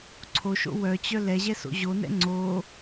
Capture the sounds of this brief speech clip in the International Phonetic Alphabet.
ǀʰ o ʃ o̰ w œ t͡ɕ œ l ɛ ʑ ɛ s o̰ ʑ o n ɛ̰ ŋ͡ǀ o

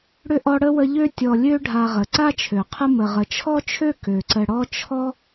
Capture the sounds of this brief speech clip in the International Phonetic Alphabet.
ɽ ʏ˥ ʔ ɔ˦ ɽ ə˥ w ə˦ ʎ ø˥ tʲ ɔ˨ lʲ ø˦ ɖʱ a˨ ʁ ə˩ ǀ a˥ t͡ʃʰ ø˩ qʰ ə˦ m ə˩ ʁ ə˩ t͡ʃʰ ɔ˥ t͡ʃʰ ø˥ k ø˩ ǀ ə˨ ɽ ɔ˦ t͡ʃʰ ɔ˥

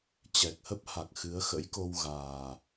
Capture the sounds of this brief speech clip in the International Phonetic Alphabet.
t͡ɕ ɛ˨˩ k̚ h ə˦˥ p̚ h a˨˩ k̚ x ɨ˨˦ ə̯ x ə̰˧˥ j k o˧ w ɣ aː˨˩

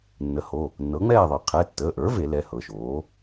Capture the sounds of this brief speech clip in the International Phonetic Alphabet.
nː ə˩˥ h o˩˧˩ | nː ɤ˩˥ ŋ͡m ɛː˥˨ ðˤ ɤ˨˩˦ qʰ ɛ˩˧˩ tː əː˩˧˩ ʔ ə˞˩˥ v e˨˩˦ l ɛ˩˧˩ h ɤ˩˧˩ ʃ oː˩˥

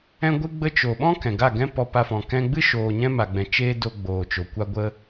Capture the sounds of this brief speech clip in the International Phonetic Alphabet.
ɛ̃˧ ɡʷ ɨ˧ ɡ͡b ə˧ t͡ʃ o˨ ɓ ɔ̃˦ k ɛ̃˨ ɡ a˦˨ ɡ ɛ̃˦ p ɔ˧ p a˧ f ɔ̃˨ k ɛ̃˧ ɡ͡b ɨ˦ ʃ oː˧ ɲ ɛ̃˦ m a˨ ɡ͡b ɛ̃˨ t͡ʃ eː˦ d o˧ ɡ͡b oː˨ t͡ʃ o˨ kʷ a˧ ɡʷ ə˧

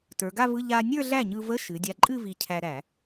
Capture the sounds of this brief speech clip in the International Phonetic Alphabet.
t ə˞˩˧ ɡ a˥˧ v ɯ˧˥˧ ʎ a˧ nʲ ə˞˥˧ ɮ æ˥˩ ɲ ɯ˧ v ə˧˥˧ ʃ ɨ˩˧ dʲ a˧ ǃʼ ɨ˥˧ v i˧ cʰ æ˧ ɾ æ˧˩˧

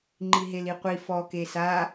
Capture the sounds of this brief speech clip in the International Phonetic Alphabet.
ŋ͡ǃ i ɦ e l i qʷ i f ɔ k e s a

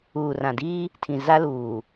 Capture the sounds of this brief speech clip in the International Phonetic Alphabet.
uː˨ r ã˨ d iː˦ | tʰ ĩ˨ z a˦ l uː˨

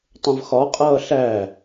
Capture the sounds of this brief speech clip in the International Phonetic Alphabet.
tˤ ə̃ v x ɒ qʼ ʌː ɬ æ

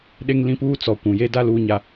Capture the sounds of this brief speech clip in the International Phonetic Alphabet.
ɗ e˦ ŋ l ĩ˦ p uː˦ t͡s ɔ˨ kʷ ũ˨ j e˦ d a˦ l uː˦ ɲ a˦

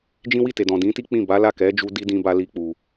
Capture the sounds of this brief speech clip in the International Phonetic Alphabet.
d͡ʒ ĩ˦ w i˦˨ t e˨ d ɔ̃˨ d ĩ˨˦ t i˦ k͡p ĩ˦˨ b a˨˦ l a˦˨ k ɛ˨˦ d͡ʒ u˧ d i˦ d ĩ˧ b a˧ l i˦ k͡p u˧

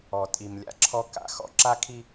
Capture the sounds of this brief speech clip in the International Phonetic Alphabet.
ɔ˨ tʼ i˨ m lʲ a̰˦ ǁʰ ɔ˦ k a̰˨ x ɔ̰˦ ǁ a˦ kʰ i˦

